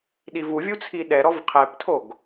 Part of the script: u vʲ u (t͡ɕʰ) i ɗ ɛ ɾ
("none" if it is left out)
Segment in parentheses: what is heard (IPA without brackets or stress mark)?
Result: t͡sʰ